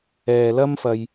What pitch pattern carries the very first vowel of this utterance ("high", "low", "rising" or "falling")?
low